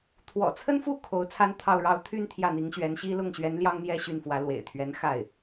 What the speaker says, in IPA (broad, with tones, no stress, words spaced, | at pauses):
t̪ʰwɔ̰˨˩t͡sʰə˥nfu˥˩ kʰo˧˥ʊ̯t͡sʰa˥n t̪ʰɑ˥˧ʊ̯ɻɑ˥˧ʊ̯ t̪ʰy˥˧n t̪ʰjä˥˩n̪i˧˥ŋɕɥɛ˧˥nɕi˥ lʊ˥˩ŋɕɥɛ˧˥n ljɑ˥ŋn̪jɛ˥˧ ɕy˥˩nfwä˧˥ lwḛ˨˩ɪ̯t̪ʰɥɛ˧˥n xa˥˩ɪ̯